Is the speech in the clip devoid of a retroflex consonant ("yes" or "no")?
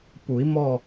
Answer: yes